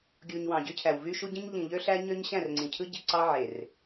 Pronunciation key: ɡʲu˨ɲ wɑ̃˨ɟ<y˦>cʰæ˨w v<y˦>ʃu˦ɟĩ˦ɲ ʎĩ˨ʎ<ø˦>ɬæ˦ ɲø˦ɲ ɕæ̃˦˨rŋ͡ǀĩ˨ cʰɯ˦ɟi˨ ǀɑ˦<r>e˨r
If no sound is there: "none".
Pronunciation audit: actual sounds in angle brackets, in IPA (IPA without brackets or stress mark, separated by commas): y˦, y˦, ø˦, ʕ